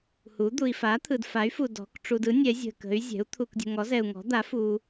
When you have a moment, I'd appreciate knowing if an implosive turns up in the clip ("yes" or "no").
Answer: no